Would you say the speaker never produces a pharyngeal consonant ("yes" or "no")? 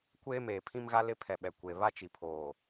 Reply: yes